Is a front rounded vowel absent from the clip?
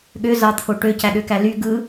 no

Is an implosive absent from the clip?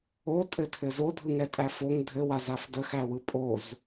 yes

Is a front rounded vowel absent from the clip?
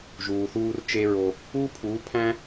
yes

